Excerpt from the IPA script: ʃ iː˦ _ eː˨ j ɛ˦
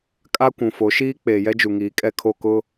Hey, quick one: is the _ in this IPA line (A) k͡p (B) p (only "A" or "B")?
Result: A